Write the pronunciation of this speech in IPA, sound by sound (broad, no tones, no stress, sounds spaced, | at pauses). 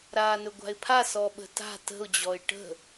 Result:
ɾ aː n ɵ ɡʷ a̤ ɪ̯ pʰ a s ɔ ɓ ə̤ t a̤ t ə̤ ʊ̯ d͡ʑ ɔ ɪ̯ ʈ ə̤